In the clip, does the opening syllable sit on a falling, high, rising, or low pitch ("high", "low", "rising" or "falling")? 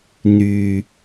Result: low